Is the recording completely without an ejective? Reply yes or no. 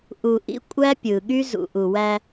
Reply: no